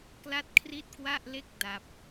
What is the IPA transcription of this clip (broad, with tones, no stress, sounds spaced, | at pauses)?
k l a˥˩ t̚ kʰ r i˥˩ t̚ k w a˥˩ ʔ l e˥˩ k̚ d a˦˥ p̚